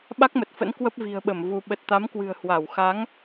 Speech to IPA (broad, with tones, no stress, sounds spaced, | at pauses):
ɓ a˦˥ k̚ m ə˨˩ t̚ f ə̰˧˥ n k w ə˦˥ p̚ v i̤˨˩ ə̯ ɓ ə˧˩ m v u˧ ɓ ə˨˩ t̚ t̪ a˨˦ m k w ɨ̤˨˩ ə̯ h w a˧˩ w x a˨˦ ŋ